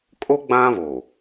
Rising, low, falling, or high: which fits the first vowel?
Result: high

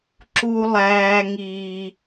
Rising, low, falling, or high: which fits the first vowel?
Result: high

